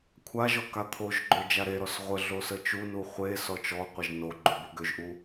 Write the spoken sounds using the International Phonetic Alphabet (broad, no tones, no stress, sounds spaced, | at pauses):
kʷʰ a ʒ ɔ k a t̪ʰ o ʒ ɡ͡ǃ ø d͡ʒ a ɾ e ɾ ɔ s ʁʷ ə ɮ o s ə t͡ʃ u n u χʷ e s ɔ t͡ʃ ɔ qʷ ə ʒ n o ɡ͡ǃ u b u ɡ ø ʒ ʔ u